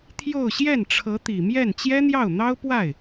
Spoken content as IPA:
t̪ʰ j o˥˧ ʊ̯ ɕ j ɛ˥˩ n ʈ͡ʂʰ ɤ˧˥ t̪ i˨˩ m j ɛ˥˩ n t͡ɕ j ɛ˥ n̪ j ɑ˥˩ ʊ̯ n̪ ɑ˥ ʊ̯ p w a˥˩ ɪ̯

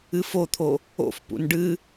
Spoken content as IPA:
ɨ f o t̪ʰ o | o̰ f p ṵ n ɖ ɨ

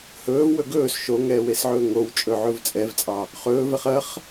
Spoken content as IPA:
h ɵː v w ɵ ɡ ɵː s ʃ o ŋ ɛː w e s ʕ ɵː ŋ o w t͡ʃʼ ɵ ʕ ɵ v t͡sʼ ɛ v t͡sʼ ɑ | χ ɵː v ɛ χ ɐ χ

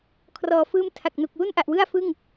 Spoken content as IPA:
kʰ r ɔː˨˩ f ɯː˦˥ m tʰ a˨˩ k̚ n u˨˩ k̚ w u˥˩ n ʔ a˨˩ ʔ w ɯ˥˩ a̯ f ɯ˥˩ ŋ

